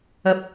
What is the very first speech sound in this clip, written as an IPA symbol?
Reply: ɐ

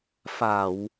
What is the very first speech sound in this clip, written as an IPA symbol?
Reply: f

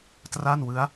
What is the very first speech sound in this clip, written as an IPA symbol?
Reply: t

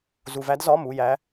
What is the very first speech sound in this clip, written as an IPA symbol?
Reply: z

